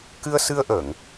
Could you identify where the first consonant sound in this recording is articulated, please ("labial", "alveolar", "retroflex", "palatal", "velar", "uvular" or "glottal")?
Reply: velar